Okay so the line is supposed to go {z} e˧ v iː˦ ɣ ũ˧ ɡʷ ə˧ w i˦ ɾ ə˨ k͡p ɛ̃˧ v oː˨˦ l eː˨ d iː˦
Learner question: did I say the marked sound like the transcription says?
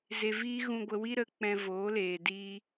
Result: yes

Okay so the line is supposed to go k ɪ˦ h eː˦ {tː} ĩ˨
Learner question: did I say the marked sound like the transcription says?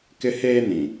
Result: no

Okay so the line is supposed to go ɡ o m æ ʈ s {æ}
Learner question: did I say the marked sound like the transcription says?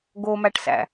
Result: no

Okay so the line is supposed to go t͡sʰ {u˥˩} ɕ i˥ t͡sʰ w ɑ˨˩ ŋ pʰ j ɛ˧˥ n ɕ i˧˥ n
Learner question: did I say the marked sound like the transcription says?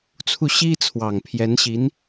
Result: yes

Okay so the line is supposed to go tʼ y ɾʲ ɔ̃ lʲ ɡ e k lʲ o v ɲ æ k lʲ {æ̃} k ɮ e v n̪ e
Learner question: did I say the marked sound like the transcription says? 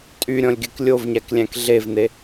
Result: yes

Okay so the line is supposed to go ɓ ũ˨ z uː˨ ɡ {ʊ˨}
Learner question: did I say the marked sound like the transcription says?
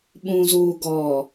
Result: no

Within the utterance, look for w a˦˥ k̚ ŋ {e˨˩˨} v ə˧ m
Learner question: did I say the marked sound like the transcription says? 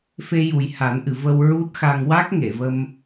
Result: yes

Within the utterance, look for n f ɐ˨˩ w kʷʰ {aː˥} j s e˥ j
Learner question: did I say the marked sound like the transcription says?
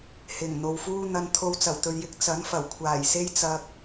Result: no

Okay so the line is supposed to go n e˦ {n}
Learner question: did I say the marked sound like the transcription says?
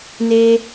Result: no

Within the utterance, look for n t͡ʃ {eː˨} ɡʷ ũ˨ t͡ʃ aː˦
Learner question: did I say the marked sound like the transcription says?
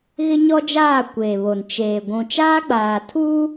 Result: yes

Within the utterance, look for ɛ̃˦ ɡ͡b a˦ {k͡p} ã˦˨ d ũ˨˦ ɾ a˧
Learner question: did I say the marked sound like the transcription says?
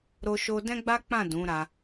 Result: yes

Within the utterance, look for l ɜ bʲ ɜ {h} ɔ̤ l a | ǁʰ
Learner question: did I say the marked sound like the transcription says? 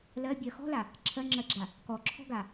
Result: no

